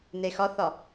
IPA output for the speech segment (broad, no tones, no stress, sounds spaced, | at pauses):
n e x ɒ θ ɒ